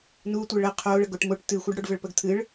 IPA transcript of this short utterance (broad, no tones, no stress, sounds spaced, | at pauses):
n u tʷ ə ɭ ə qʰ o ɭ ə ɡ o ʈ m o ʈ t ɨ xʷ ɨ ɖ ɽ o ɖ v ə ɭ p ə ɡ t̪ʰ ɨ ɭ